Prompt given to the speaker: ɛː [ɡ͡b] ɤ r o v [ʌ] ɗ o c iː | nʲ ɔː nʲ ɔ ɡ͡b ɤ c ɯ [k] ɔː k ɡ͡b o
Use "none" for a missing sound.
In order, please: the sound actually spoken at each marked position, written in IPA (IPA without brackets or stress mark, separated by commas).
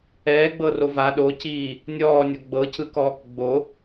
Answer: ɡ͡b, a, k